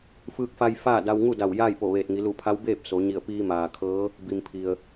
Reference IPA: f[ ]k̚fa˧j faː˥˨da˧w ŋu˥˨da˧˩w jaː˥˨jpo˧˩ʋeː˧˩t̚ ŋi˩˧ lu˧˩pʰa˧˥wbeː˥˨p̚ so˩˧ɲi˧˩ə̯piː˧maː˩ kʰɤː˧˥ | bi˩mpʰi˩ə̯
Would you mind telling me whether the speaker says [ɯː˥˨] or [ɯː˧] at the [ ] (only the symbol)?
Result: ɯː˧